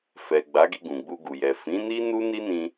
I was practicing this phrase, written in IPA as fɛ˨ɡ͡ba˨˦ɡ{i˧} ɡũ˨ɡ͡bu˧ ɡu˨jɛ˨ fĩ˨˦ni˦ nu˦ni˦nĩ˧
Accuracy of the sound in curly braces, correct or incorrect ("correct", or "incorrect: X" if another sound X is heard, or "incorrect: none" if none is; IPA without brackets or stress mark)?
correct